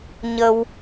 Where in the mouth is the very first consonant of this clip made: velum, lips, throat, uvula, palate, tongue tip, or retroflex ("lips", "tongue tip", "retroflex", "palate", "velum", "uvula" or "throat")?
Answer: palate